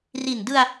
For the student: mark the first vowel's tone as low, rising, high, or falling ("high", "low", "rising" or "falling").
low